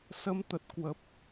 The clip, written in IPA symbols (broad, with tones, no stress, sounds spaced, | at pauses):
s ə˧ m t̪ ə˨˩ t̚ k w ə˨˩ p̚